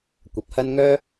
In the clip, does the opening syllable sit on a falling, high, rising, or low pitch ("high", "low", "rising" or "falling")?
rising